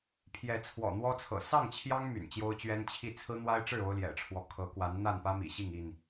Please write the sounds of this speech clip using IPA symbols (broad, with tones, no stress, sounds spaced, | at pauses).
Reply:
pʰ j ɛ˨˦ t͡sʰ w ɔ̰˨˩ n̪ w ɔ˦ t͡sʰ ɤ̰˨˩ s ɑ˥˨ ŋ t͡ɕʰ j ɑ˦ ŋ m y̰˨˩ n t͡ɕ j o˦ ʊ̯ t͡ɕ ɥ ɛ˦ n t͡ɕʰ i˥˨ t͡sʰ ɹ̩˦ n̪ w a˦ ɪ̯ ʈ͡ʂ ɻ̩˥˨ o˦ ʊ̯ l j ɛ̰˨˩ ʈ͡ʂʰ w ɔ˦ kʰ ɤ˨˦ k w a˨˦ n n̪ a˥˨ n p ä˦ m ḭ˨˩ ɕ i˥˨ ŋ i˥˨ n